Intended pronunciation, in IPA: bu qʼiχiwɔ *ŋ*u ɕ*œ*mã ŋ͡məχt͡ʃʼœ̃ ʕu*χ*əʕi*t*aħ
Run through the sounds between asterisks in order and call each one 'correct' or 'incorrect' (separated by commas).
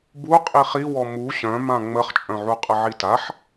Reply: incorrect, incorrect, incorrect, correct